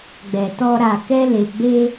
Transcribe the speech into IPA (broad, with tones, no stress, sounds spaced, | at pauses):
ɡ͡b ɛ˨ t ɔ˧ ɾ a˨ k ɛ˧ l e˨ ɡ͡b e˧